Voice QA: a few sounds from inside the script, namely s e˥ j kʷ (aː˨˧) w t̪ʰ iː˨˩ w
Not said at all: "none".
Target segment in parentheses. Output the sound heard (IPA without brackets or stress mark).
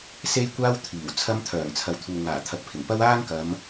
aː˥